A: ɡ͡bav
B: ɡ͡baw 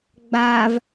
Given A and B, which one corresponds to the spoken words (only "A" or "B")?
A